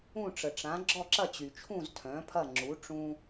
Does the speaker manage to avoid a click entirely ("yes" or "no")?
no